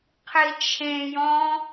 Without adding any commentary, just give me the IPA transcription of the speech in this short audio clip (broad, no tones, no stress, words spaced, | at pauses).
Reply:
qʰit͡ʃʰẽjɔ̃ː